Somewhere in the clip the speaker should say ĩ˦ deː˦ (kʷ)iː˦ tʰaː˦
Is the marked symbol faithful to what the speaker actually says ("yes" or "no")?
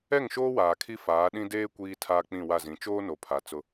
yes